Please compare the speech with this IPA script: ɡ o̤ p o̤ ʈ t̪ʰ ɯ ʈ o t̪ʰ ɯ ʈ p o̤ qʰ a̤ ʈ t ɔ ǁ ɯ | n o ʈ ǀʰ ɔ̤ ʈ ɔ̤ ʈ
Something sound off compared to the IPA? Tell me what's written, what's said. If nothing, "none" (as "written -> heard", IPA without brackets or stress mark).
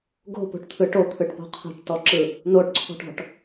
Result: none